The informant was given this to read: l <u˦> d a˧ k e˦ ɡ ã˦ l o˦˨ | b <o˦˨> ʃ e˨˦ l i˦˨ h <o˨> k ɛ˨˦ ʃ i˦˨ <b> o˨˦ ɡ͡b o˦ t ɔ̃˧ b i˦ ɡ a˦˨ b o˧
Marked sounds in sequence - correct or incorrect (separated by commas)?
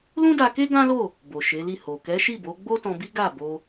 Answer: incorrect, incorrect, correct, correct